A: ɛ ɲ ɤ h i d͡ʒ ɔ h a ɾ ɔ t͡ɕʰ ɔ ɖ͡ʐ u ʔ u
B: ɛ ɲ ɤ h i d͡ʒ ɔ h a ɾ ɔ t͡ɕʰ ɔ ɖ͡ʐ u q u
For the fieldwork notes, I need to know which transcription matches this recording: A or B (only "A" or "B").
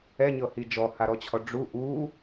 A